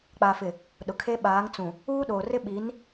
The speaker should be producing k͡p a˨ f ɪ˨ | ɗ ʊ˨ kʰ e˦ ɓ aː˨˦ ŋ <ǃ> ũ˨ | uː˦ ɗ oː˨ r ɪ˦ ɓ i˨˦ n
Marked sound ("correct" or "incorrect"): incorrect